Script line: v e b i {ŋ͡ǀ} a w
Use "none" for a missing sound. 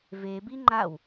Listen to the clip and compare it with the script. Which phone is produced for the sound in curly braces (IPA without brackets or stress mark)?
ŋ͡ǃ